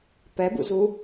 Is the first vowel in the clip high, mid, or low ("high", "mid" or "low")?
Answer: mid